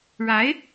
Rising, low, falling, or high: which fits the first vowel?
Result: rising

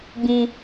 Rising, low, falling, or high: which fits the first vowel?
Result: low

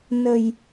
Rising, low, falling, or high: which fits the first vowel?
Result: low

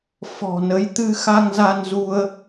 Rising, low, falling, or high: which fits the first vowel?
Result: low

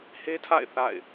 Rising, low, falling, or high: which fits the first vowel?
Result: high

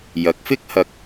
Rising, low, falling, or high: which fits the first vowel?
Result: rising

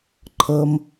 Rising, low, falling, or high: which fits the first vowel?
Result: low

